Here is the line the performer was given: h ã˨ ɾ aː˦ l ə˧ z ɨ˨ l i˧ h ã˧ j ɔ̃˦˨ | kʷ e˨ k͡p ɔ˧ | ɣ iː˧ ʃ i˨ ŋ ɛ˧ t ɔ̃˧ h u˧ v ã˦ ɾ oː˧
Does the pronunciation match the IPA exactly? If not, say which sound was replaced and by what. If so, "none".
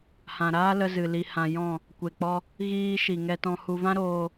none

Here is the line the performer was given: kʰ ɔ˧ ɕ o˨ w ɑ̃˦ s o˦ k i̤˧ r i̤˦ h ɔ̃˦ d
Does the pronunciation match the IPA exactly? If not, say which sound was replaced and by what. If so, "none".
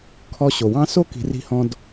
none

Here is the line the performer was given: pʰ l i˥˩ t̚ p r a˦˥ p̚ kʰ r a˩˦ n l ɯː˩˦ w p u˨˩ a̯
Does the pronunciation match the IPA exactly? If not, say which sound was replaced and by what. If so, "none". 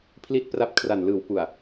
none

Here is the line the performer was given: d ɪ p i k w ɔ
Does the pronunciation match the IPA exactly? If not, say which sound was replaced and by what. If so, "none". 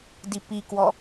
ɪ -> i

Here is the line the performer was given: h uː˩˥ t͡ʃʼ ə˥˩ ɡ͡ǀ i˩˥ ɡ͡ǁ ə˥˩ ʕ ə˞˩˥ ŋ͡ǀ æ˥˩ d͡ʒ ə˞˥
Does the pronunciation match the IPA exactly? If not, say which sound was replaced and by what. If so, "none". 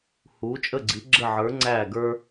d͡ʒ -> ɡ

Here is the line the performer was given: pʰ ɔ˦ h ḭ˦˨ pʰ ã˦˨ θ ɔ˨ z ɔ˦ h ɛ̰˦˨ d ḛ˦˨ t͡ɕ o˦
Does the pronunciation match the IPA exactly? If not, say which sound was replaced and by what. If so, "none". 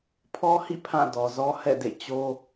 θ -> d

